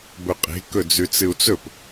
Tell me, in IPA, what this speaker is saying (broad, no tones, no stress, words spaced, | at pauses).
bɵqʼe̤ kɵd͡zʉt͡sɨu̯t͡sɵp